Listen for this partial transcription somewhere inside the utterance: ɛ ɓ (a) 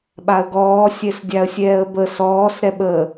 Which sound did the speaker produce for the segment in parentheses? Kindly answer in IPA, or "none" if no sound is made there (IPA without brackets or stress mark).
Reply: ə